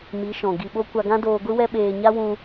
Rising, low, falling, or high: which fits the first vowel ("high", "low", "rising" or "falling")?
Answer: rising